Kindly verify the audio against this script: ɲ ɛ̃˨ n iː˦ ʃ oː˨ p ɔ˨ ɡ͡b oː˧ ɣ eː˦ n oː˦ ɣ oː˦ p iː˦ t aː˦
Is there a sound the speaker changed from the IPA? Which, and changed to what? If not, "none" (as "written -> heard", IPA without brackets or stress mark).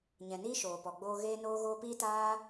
none